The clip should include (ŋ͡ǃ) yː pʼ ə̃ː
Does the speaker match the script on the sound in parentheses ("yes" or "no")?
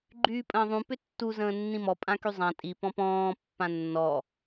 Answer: no